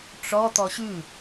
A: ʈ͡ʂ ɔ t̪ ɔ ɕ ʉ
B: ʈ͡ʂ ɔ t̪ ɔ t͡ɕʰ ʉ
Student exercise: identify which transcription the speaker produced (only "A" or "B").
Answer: A